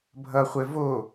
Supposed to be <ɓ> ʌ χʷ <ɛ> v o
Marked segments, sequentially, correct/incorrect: incorrect: bʱ, correct

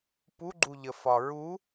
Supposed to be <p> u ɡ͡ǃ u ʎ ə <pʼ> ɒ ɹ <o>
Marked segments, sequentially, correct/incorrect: correct, incorrect: f, incorrect: u

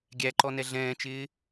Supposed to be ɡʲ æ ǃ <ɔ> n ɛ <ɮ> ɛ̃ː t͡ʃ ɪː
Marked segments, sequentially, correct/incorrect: correct, correct

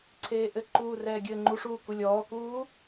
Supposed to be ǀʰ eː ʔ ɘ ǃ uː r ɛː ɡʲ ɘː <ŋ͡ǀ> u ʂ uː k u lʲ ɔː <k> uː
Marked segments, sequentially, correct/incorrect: incorrect: ŋ͡ǃ, correct

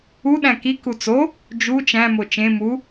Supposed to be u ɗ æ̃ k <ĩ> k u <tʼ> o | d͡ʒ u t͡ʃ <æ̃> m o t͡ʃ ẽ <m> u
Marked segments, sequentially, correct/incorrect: incorrect: i, incorrect: t͡s, correct, correct

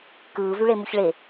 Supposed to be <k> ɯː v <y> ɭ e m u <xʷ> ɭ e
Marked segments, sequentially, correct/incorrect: correct, correct, incorrect: ç

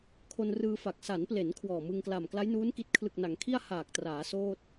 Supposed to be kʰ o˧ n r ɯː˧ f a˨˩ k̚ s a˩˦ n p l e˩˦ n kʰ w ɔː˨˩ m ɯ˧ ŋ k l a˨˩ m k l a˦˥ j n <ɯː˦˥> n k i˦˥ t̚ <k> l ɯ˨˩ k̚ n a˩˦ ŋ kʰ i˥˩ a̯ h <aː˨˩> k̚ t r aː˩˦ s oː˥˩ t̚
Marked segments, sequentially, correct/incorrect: incorrect: uː˦˥, incorrect: kʰ, correct

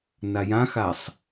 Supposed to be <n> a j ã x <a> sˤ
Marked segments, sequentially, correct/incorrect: correct, correct

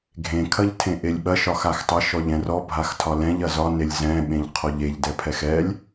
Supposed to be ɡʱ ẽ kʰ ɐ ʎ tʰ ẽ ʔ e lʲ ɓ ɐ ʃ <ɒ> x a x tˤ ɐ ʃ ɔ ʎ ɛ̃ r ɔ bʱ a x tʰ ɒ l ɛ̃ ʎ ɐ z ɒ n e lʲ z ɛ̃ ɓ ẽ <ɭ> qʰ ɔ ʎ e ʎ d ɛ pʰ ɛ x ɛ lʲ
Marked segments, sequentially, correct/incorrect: correct, incorrect: ʎ

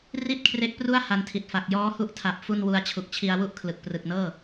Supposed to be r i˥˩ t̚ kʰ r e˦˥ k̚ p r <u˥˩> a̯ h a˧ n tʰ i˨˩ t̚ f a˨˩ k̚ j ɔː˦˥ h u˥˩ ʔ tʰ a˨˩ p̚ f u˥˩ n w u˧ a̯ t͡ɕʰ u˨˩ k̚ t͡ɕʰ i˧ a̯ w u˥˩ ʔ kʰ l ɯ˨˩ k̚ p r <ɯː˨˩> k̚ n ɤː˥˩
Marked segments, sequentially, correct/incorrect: correct, incorrect: ɯ˨˩

